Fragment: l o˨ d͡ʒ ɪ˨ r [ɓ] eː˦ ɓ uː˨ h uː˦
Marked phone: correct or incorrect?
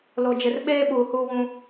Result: correct